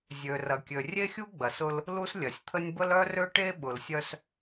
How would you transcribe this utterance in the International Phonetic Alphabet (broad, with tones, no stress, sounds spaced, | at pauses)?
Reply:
zʲ ø˨ r ɐ˨ kʲ ø˨ rʲ e˦ xʲ u˦ ɡ͡b ɐ˨ s ʊ˦ l | l u˦ s lʲ ɐ˨ sʲ t̪ʰ ə˦ nʲ b ə˦ l œ˦ r ø˦ ʈ e˦ ɓ ʊ˨ l sʲ œ˦ s